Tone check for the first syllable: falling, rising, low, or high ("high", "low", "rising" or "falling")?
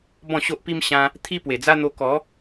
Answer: falling